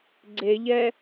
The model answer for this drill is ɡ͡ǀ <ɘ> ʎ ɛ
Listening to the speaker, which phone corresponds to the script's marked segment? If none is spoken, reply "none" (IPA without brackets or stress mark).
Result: e